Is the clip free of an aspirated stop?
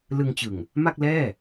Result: yes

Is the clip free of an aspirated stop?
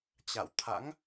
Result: no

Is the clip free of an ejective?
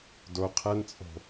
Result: no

